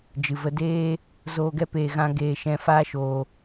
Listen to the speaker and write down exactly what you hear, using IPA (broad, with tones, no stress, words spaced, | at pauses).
d͡ʒɨ˨və˧deː˦ | zoː˧ɡɛ˦ peː˧ɣã˦ ɡeː˧ʃɛ̃˧ faː˦ʃoː˧